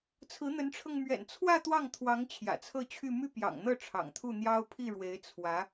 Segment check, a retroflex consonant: present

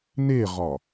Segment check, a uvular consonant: present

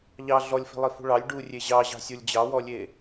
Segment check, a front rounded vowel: absent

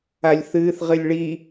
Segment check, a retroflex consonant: present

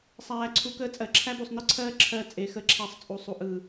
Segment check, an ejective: present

